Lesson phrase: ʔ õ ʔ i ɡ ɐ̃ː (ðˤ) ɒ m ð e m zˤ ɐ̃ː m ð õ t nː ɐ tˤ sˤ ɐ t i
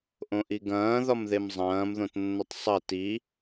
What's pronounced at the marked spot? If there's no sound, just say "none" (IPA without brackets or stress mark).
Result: ð